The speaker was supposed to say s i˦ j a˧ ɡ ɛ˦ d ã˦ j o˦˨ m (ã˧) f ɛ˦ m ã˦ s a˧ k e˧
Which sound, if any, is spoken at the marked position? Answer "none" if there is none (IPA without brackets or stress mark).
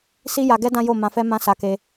ã˧